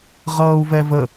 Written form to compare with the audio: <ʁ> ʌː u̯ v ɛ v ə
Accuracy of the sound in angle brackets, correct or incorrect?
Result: correct